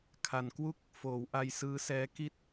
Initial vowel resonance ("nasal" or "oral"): oral